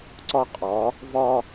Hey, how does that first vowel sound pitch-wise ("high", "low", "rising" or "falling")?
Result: high